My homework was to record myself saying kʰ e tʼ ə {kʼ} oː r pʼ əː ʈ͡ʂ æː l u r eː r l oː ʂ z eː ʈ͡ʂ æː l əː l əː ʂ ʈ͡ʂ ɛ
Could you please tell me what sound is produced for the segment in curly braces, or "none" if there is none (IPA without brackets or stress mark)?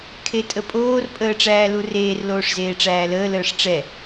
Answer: pʼ